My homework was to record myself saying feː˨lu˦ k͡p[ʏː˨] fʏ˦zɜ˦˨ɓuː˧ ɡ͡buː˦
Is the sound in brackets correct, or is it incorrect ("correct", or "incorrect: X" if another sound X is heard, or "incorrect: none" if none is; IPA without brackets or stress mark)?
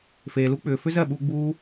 correct